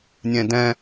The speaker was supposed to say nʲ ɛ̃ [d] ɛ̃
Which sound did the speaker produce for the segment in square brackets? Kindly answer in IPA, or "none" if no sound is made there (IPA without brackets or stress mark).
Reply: d